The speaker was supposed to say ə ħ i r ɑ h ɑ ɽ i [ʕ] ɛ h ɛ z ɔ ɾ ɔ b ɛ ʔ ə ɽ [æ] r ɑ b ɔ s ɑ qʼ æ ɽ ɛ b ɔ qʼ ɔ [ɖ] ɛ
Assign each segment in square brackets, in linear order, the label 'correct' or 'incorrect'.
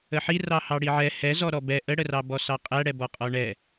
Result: correct, incorrect, incorrect

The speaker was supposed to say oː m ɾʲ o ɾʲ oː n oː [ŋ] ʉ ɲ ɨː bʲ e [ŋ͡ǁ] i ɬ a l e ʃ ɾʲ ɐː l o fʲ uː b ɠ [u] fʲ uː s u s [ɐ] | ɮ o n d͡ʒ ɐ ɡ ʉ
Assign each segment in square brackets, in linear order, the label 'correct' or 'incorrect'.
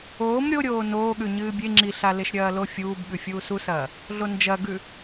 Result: incorrect, correct, incorrect, incorrect

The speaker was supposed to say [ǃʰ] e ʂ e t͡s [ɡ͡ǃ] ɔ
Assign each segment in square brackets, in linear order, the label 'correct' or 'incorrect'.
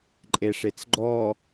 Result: incorrect, correct

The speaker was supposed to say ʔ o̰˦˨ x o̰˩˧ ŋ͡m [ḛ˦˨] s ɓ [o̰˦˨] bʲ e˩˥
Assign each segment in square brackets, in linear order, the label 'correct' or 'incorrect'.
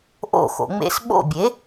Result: incorrect, correct

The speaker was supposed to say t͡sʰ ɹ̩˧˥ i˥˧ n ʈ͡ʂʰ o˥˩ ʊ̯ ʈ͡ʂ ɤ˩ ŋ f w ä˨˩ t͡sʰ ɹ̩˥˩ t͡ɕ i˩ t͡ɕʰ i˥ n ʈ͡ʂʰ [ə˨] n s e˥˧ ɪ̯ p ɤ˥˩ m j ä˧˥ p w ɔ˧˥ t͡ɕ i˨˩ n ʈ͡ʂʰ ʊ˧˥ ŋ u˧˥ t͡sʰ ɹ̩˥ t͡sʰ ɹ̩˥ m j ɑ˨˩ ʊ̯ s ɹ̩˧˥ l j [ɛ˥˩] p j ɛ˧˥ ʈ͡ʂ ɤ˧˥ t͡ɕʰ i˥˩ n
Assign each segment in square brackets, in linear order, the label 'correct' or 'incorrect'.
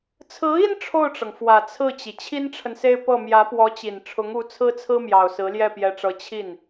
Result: correct, correct

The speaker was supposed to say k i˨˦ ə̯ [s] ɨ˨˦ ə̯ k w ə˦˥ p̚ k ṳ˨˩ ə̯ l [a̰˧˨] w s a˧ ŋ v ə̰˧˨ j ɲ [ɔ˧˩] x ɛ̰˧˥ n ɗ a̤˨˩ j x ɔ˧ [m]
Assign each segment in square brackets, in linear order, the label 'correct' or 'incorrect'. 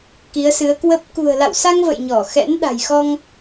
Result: correct, correct, correct, incorrect

